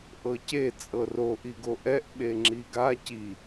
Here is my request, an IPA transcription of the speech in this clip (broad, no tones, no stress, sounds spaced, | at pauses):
ʔ ɤ c e t͡sʼ ɤ r o ʔ i ɡ o ʔ ɛ ʔ ɓ e ŋ͡ǁ i ɡ a c i